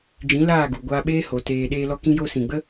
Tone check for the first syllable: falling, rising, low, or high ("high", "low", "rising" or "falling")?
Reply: rising